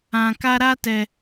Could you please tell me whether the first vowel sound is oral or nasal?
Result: nasal